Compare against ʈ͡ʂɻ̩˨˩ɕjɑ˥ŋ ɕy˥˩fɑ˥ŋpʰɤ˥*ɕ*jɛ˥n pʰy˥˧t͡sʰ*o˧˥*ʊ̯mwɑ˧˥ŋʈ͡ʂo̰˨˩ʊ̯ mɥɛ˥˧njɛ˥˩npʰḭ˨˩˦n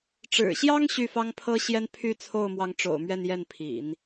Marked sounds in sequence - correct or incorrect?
correct, incorrect

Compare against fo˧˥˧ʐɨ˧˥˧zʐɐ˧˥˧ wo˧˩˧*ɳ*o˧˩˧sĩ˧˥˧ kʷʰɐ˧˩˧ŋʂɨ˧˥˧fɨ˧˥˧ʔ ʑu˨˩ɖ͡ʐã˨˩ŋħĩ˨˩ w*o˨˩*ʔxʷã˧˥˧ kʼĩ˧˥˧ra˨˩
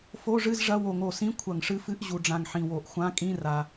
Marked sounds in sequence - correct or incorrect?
incorrect, correct

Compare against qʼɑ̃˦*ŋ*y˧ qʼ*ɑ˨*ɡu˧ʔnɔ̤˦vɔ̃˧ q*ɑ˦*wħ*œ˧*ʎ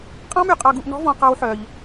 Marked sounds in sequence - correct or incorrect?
incorrect, incorrect, correct, correct

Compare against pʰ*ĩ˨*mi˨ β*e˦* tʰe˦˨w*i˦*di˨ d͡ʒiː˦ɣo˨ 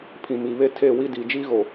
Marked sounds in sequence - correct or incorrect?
correct, correct, correct

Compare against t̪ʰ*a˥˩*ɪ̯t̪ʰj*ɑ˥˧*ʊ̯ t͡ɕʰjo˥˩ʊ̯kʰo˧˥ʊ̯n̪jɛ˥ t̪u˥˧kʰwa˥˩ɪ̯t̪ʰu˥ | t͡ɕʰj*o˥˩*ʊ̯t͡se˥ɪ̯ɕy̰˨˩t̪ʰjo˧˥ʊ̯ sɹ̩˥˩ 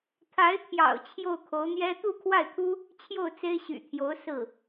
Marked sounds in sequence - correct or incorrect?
incorrect, incorrect, correct

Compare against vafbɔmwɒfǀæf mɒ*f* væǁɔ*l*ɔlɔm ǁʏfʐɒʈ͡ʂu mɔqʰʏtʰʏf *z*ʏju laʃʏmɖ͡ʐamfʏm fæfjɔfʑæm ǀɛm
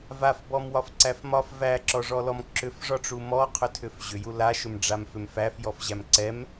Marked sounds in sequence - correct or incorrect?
correct, incorrect, incorrect

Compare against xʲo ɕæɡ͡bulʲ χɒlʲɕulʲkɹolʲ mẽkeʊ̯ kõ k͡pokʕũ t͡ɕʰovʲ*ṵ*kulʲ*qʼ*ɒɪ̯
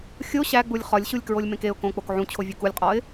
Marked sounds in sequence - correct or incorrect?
incorrect, correct

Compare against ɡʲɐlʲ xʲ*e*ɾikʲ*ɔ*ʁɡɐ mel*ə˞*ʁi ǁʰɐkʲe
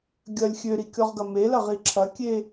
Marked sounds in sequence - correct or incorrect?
incorrect, correct, incorrect

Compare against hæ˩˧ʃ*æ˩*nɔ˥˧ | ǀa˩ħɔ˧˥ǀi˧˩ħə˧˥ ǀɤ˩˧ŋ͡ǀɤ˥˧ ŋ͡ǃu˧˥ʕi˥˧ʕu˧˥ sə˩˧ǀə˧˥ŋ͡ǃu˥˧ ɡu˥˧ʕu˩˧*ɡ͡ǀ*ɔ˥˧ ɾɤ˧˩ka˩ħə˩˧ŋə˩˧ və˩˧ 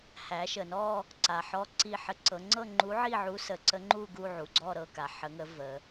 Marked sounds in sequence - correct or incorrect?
incorrect, correct

